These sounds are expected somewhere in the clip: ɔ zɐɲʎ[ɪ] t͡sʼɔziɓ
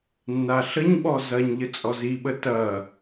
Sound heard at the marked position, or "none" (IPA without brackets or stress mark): ə